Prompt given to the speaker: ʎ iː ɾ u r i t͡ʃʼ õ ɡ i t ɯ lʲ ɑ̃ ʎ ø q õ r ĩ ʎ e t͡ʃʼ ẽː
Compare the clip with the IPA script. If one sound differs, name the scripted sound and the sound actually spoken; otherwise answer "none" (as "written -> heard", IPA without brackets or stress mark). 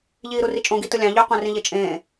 none